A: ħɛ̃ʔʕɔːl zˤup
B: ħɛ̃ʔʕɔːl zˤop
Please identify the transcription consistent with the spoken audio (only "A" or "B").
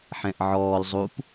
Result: A